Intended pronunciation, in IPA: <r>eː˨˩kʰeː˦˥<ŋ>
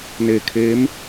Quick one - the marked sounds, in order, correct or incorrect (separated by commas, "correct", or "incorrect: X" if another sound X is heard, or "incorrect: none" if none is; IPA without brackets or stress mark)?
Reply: incorrect: n, incorrect: m